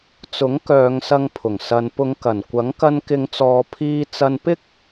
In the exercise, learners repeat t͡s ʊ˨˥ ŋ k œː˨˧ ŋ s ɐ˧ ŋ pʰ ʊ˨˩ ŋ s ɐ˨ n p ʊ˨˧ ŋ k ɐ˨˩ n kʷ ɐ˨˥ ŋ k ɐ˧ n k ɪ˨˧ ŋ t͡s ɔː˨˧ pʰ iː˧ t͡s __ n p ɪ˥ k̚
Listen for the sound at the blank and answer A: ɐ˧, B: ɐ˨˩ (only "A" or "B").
A